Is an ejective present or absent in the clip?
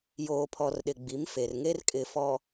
present